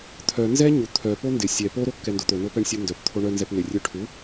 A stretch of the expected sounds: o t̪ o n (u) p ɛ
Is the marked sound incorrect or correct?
incorrect